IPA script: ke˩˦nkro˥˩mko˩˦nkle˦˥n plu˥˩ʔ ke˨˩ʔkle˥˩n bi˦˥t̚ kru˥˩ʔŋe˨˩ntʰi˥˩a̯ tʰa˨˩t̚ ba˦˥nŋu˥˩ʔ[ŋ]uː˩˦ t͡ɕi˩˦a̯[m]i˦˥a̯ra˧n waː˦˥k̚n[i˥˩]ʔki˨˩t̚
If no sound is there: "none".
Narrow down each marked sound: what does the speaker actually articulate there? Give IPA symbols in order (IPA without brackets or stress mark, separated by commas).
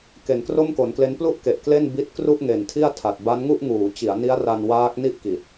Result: ŋ, n, i˥˩